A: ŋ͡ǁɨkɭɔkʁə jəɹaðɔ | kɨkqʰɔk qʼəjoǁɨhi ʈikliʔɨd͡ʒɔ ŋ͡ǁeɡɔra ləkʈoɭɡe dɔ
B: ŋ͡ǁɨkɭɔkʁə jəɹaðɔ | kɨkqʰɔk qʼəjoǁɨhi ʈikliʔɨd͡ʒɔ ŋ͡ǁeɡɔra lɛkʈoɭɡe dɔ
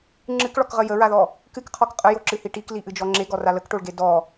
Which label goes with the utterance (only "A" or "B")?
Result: A